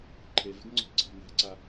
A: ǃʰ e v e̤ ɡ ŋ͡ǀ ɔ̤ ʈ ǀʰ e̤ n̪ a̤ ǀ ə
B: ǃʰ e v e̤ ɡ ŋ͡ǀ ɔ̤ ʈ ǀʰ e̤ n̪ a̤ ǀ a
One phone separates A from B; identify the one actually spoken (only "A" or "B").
B